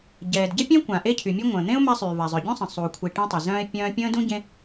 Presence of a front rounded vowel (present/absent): present